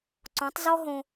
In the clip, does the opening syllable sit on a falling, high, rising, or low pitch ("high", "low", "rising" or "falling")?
rising